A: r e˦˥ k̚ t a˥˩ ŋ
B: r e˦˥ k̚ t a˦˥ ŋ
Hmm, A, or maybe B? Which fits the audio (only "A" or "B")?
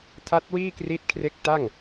A